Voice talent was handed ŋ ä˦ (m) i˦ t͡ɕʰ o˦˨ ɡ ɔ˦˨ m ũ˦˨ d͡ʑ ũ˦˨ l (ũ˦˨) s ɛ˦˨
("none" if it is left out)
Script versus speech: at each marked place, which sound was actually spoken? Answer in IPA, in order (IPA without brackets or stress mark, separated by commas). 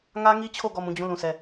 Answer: ŋ, ũ˦˨